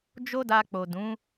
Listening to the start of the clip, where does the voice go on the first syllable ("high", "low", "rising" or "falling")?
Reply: high